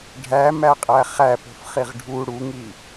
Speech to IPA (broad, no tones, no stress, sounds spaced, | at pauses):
ɖʱ æ m æ qʼ æ χ æ p o̤ f χ i ʁ ɖʱ u ɽ u ŋ i